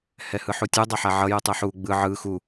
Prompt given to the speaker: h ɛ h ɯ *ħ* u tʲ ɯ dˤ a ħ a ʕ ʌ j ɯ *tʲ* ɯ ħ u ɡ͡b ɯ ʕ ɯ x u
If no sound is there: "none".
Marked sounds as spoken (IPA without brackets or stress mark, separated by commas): ħ, tˤ